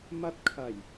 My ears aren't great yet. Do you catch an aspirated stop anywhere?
yes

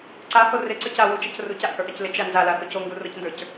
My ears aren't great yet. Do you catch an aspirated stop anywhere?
no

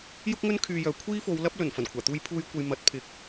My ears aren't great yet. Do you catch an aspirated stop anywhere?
yes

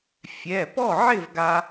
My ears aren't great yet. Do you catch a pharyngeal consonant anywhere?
yes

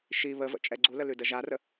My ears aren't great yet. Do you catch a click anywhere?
yes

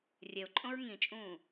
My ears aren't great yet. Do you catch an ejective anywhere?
yes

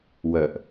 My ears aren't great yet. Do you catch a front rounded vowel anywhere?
yes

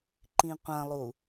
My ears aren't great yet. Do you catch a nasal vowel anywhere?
yes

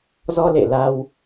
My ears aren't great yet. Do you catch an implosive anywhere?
no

